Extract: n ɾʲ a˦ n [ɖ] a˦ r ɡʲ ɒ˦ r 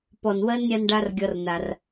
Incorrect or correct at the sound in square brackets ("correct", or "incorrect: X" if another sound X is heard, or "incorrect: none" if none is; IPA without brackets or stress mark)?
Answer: correct